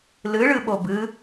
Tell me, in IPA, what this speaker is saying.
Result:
l ɨ ɭ ɨ ɓ o b ɨ

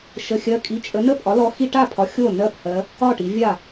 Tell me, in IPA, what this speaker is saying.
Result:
ʃ ə˧˥˧ xʲ ɜ˧˥˧ kʼ i˧˥˧ t͡ʃʼ ə˨˦ n ə˥˩ pʼ ɒ˨˦ l ɔ˨˦ x i˧˥˧ ʈ a˥˩ pʰ ɒ˨˦ xʲ o˥˩ n ɜ˥˩ p h ɜ˨˦ | ɒ˥˩ ʈ i˨˦ vʲ a˥˩

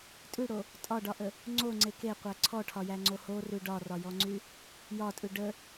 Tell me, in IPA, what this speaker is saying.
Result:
tʼ ʉ ɽ o | tʼ ɒ ɖ ɒ ʔ ə | ŋ͡ǀ o ŋ͡ǀ e k e qʷ æ ǀʰ ɔ ʈʰ ɒ j æ ŋ͡ǀ o h o r ʉ ɖ ɒ r ɒ j ɔ ŋ͡ǀ y | j ɒ tʼ ʉ ɖ ə

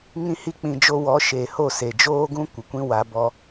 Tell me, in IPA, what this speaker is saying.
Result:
ŋ ĩ˦ h i˦ k͡p ĩ˧ d͡ʒ o˦ w ɔ˨˦ ʃ e˨ h o˦˨ s e˨ d͡ʒ oː˦ ɡ ũ˦ kʷ ə˨ kʷ ĩ˦ w a˧ b ɔ˧

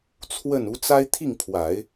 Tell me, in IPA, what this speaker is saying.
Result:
t͡sʰ w ə˥˩ n u˧˥ t͡s a˥ ɪ̯ t̪ʰ i˥˩ ŋ pʰ w a˨˩˦ ɪ̯

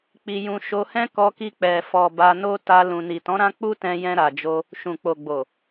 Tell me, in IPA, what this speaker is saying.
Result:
k͡p i˧ j ũ˧ ʃ o˧ h ɛ̃˦ k ɔ˧ k i˧ k͡p ɛ˨ f ɔ˨ b a˧ n o˦ t a˧ l ũ˨ n i˨ t ɔ̃˨˦ ɾ ã˦ k͡p u˦ t ɛ̃˧ j ɛ̃˧ ɾ a˨ d͡ʒ o˧ | ʃ ũ˨ k͡p o˨ ɡ͡b o˨

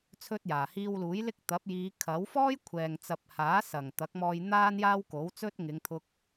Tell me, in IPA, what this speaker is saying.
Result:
t͡sʰ ɵ˥ t̚ j aː˨˩ h iː˧ w l uː˨˥ j l ɪ˥ k̚ t̪ ɐ˨˥ p̚ j iː˨˧ kʰ ɐ˨˥ w f ɔː˥ j kʷʰ ɛː˨ ŋ t͡s ɐ˨ p̚ h aː˨˥ s ɐ˨˩ ŋ t̪ ɐ˨˥ k̚ m ɔː˧ j n̪ aː˥ n j aː˥ w k o˨˥ w t͡s ɵ˥ t̚ ŋ ɪ˨˧ ŋ t̪ʰ ʊ˧ k̚

